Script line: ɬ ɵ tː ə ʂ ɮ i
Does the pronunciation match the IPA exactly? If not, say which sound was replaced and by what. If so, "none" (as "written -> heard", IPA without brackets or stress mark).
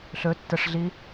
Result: none